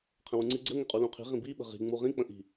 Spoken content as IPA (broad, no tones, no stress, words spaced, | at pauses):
qʰə̃wũŋ͡ǀi ɡ͡ǀə ŋɪqʼulũqʰi̤ ʁĩbiɓə̤ ʁi̤ŋ͡mu ʁĩk͡pə̃ʔi̤